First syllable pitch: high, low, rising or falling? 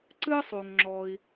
high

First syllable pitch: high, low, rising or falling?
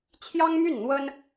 high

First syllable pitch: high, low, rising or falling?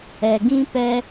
low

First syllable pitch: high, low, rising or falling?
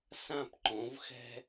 falling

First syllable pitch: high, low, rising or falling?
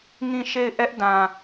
falling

